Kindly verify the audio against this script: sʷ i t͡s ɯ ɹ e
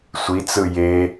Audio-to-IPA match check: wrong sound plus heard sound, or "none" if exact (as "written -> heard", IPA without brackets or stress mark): ɹ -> j